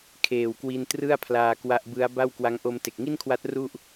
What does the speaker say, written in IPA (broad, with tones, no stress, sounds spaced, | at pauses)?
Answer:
kʰ eː˨˩ w k w i˧ n t r ɯ˥˩ a̯ pʰ l aː˧ k w a˦˥ ʔ b ɯ˦˥ a̯ b a˥˩ w k w a˦˥ ŋ ʔ o˧ m t e˨˩ k̚ ŋ i˥˩ n kʰ w a˦˥ t̚ r u˥˩ ʔ